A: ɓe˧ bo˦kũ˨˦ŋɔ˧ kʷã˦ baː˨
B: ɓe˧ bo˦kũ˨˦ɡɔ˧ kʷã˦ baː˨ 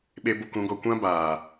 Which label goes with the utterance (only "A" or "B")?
B